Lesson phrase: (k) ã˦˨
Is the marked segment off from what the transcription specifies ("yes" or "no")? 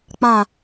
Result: yes